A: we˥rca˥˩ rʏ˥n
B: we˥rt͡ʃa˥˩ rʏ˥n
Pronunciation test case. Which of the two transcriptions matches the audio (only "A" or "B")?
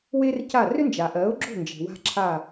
A